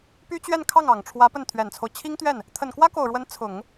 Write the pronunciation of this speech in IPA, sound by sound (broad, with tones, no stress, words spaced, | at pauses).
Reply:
py˥t͡ɕɥɛ˥˧nkʰɑ˥˩ŋ ɑ˨˩ŋʈ͡ʂʰwä˧˥ pə˥˩nt̪ʰɥɛ˨˩nt͡sʰo˦ʊ̯ t͡ɕʰi˥ŋt̪ɥɛ˥˩n | t̪ʰə˨˩nkwä˥ko˨˩ʊ̯ɻwə˧˥n t͡sʰʊ˨˩˦ŋ